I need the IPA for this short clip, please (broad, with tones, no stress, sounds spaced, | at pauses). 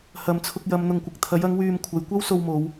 h ɐ˨ m t͡sʰ ʊ˧ k̚ j ɐ˨˧ m n̪ ʊ˨ ŋ kʷ ɪ˨ k̚ t̪ʰ ɐ˨˥ j ɐ˨˥ ŋ w yː˧ m kʷʰ ɐ˨˧ j kʷ ɐ˥ w s o˧ w m o˨˧ w